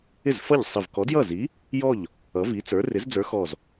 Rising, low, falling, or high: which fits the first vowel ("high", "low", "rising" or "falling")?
falling